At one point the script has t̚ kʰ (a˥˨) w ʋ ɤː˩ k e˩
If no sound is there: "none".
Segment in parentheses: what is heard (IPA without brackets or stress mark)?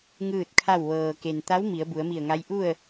a˥˨